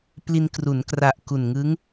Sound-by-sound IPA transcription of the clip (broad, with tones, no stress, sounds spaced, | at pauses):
p l i˧ n k r u˩˦ n k r a˨˩ ʔ k u˨˩ n ŋ ɯ˦˥ ŋ